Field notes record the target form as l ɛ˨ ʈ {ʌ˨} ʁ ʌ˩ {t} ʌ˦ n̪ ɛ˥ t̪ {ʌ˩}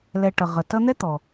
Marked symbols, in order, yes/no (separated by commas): no, yes, no